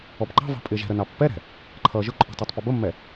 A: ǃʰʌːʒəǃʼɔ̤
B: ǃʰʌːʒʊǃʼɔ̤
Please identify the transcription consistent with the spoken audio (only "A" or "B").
B